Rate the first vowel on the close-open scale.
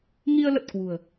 close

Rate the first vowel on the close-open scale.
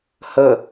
mid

